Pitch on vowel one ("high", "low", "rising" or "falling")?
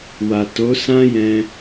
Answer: low